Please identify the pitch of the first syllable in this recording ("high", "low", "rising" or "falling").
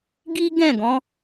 high